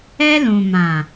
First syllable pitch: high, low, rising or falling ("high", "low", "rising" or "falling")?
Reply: high